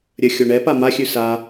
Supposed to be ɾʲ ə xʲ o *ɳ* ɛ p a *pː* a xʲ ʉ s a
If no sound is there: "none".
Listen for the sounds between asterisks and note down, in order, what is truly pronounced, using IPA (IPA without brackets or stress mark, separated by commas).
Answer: ɳ, m